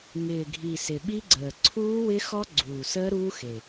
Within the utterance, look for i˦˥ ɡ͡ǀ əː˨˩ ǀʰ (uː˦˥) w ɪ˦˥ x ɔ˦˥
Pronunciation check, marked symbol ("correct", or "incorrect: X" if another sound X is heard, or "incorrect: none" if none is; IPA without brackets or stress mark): correct